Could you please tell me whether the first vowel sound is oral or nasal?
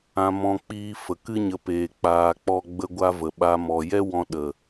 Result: nasal